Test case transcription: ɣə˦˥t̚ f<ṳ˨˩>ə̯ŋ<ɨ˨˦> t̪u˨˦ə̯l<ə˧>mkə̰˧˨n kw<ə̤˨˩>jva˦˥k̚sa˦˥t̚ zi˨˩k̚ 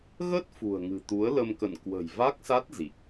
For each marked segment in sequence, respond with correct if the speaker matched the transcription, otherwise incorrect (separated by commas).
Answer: correct, incorrect, correct, correct